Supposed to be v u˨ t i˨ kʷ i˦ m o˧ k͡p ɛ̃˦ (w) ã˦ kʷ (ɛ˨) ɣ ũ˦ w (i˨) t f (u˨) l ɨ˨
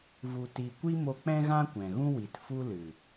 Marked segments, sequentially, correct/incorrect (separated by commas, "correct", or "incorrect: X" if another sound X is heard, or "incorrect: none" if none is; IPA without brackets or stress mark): incorrect: ɣ, incorrect: ɛ̃˨, correct, incorrect: u˦